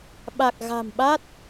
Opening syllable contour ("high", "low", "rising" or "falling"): low